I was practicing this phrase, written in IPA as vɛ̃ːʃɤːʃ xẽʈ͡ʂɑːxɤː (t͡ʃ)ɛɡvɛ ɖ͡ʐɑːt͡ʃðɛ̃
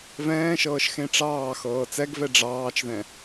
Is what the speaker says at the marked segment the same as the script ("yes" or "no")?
no